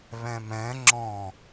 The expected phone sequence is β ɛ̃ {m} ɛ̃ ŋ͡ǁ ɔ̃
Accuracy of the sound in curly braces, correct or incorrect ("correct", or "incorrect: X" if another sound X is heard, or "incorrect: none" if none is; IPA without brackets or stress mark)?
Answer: correct